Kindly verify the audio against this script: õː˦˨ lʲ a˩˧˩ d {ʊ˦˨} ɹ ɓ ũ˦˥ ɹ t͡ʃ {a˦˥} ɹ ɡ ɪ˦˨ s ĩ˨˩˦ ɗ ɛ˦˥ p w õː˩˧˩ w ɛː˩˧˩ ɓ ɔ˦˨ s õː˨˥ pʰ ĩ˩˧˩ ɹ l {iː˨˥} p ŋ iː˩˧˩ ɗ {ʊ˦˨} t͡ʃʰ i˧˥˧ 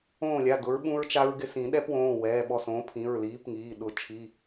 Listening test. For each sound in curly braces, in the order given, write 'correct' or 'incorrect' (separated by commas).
incorrect, correct, correct, correct